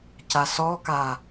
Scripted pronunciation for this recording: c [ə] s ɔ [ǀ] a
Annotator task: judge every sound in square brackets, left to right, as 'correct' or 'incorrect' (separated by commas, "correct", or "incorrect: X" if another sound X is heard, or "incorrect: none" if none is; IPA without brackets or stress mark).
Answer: incorrect: a, incorrect: k